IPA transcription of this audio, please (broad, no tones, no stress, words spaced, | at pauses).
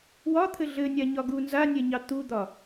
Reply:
wɒt̪ʰɘ ɮɘnʲaɲɒ ɡu nzanʲɛɲɑ t̪ud̪ɒ